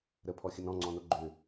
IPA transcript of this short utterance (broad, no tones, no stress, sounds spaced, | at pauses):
ɾ ə pʰ ɔ xʲ ə n ɔ̃ ŋ͡ǀ ɔ̃ n o ɡ͡ǃ ʏ